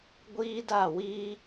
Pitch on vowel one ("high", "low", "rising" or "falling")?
high